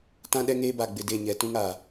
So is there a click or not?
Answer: no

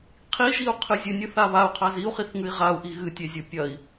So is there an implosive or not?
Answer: no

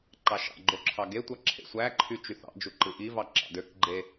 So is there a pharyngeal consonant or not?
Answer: no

